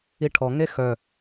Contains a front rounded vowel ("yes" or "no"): yes